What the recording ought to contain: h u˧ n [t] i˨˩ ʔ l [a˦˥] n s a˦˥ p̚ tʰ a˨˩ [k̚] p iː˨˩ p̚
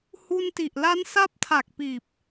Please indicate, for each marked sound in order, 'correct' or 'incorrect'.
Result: correct, correct, correct

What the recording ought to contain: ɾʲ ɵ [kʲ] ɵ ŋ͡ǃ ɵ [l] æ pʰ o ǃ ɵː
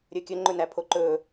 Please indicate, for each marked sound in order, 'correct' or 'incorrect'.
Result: correct, incorrect: n

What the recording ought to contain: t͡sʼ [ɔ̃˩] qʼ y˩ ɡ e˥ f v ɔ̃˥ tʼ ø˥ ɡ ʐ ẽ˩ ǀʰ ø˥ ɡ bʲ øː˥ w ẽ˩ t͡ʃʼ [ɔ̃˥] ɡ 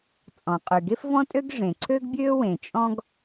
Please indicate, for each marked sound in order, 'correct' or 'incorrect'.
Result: correct, correct

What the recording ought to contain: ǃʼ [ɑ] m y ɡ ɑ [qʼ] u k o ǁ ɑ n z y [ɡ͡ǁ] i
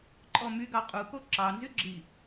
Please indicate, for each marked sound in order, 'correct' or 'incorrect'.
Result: incorrect: ɔ, correct, correct

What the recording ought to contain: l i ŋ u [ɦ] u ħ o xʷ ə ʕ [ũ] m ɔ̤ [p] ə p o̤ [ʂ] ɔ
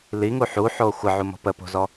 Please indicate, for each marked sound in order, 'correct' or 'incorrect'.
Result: incorrect: ħ, incorrect: u, correct, incorrect: z

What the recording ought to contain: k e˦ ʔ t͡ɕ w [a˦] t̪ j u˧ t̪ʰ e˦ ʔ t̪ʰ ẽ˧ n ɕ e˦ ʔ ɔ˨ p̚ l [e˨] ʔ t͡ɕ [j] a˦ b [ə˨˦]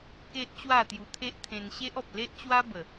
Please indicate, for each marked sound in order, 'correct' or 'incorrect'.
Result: incorrect: a˥˧, incorrect: e˦, incorrect: w, incorrect: ə˨˩

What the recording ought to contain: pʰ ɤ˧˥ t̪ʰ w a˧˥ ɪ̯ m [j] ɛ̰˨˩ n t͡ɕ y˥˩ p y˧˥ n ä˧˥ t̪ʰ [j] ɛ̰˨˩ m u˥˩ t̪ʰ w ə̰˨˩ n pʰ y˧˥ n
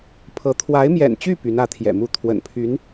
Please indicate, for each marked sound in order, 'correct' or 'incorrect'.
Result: correct, correct

